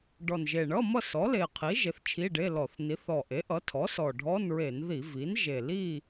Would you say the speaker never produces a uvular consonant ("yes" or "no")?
no